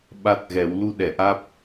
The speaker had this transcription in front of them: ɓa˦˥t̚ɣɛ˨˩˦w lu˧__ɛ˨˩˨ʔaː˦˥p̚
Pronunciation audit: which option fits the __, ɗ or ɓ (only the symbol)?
ɗ